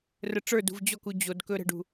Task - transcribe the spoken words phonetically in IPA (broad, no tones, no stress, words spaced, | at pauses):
rəʈ͡ʂə˞dṳv d͡ʑɔku d͡ʑod kɵɾə̤ɖṳ